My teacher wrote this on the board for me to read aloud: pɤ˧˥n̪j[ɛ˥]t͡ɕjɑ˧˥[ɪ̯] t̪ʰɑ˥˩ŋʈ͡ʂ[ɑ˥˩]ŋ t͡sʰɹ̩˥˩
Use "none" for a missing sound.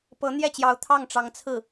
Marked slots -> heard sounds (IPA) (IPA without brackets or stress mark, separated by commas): ɛ˥˩, ʊ̯, ɑ˧˥